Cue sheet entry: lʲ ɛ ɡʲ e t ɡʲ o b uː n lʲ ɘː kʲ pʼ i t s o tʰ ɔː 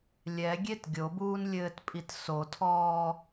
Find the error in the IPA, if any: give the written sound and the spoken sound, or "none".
kʲ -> t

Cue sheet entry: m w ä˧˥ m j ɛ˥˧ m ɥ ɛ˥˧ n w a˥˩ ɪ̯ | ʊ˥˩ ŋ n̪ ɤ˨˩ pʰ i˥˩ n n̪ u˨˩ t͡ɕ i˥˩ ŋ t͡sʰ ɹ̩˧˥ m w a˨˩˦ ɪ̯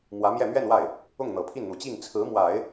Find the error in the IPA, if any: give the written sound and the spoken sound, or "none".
none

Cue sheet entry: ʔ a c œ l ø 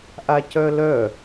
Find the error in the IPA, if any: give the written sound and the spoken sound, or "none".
ø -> œ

